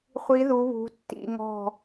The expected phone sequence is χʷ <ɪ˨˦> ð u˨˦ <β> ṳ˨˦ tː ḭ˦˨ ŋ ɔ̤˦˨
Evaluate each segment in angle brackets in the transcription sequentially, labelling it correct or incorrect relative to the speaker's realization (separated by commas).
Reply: incorrect, correct